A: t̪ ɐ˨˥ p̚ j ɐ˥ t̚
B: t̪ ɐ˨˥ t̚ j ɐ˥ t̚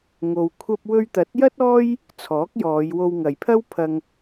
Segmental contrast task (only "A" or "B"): B